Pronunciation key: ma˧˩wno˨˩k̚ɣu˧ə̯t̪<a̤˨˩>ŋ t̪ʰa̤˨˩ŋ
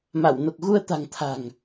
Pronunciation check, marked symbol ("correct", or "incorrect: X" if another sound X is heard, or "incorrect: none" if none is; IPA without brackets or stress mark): correct